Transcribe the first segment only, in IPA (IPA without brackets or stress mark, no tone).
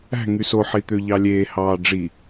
æ̤